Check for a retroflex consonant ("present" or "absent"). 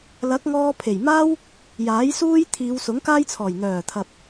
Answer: absent